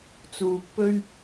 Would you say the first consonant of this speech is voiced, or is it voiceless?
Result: voiceless